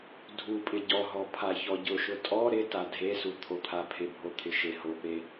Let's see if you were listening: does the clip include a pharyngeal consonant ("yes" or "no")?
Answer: no